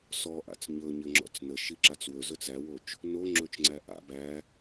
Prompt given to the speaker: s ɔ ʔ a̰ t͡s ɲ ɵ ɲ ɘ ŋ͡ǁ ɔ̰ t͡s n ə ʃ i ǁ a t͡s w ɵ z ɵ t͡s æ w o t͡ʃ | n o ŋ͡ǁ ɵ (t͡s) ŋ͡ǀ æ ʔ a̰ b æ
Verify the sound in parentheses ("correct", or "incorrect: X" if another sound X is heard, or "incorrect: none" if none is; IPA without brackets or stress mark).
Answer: incorrect: t͡ʃ